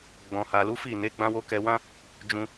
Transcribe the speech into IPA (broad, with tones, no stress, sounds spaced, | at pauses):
ɡ͡b ɔ̃˨ h a˨ l u˨˦ f i˦˨ n e˨˦ ɡ͡b ã˦ w o˦ k ɛ˧ w ã˦ | d͡ʒ ũ˧